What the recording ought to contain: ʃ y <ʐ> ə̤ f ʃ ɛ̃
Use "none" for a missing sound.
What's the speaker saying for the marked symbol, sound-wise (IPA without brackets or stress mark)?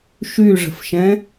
ʐ